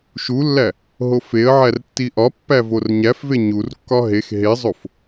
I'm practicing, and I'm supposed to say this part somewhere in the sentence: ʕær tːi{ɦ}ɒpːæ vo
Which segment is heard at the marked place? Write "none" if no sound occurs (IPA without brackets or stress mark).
ʔ